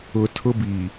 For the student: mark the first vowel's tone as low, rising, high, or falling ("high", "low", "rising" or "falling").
low